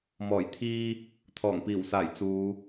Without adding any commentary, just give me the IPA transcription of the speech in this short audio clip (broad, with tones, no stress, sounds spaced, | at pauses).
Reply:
m ɔː˨˩ j t̪ʰ iː˧ | t̪ʰ ɔː˨˩ ŋ p iː˨˩ w s aː˨˩ j t͡s uː˨˧